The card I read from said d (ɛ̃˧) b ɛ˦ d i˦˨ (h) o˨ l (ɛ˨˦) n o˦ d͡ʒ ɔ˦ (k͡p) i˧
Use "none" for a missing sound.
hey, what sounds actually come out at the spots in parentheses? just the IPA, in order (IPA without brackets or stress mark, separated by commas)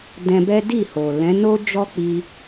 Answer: ɛ̃˧, h, ɛ̃˨˦, k͡p